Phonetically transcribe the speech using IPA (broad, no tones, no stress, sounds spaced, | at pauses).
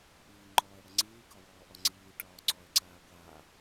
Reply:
ʔ iː ŋ͡ǃ ɔː ə̯ ɽ ə ŋ͡ǀ iː k ɒ w ɔː ʔ ɒ ŋ͡ǀ iː ʈ ɒː ǀ ɔ ɪ̯ ǀ aː ɡʷ aː